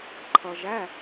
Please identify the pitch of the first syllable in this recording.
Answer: low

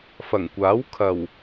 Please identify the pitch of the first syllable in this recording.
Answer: low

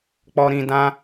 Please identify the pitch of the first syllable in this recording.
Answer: high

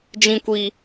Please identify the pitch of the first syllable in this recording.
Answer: high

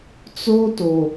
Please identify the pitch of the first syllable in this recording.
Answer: high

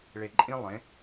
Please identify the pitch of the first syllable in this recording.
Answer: low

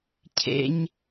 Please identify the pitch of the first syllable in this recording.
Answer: high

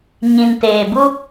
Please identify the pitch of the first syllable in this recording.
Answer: low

